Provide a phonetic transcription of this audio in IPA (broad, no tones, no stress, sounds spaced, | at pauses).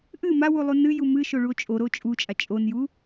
ʔ ɨ m a w u lˠ u n ɨ j u m ɨ ʃ o ɭ u o̯ t͡ʃʼ o ɾ o t͡ʃʼ u t͡ʃʼ a t͡ʃʼ o n j u